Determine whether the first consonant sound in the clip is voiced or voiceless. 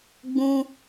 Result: voiced